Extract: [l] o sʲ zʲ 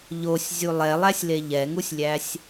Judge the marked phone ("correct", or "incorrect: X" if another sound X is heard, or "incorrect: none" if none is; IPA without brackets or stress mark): incorrect: ʎ